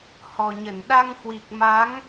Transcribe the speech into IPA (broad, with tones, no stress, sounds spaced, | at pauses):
h ɔ˨˩ ɲ ə˧˩ n ɗ a˧ ŋ h w i˨˩ k̚ m a˨˦ ŋ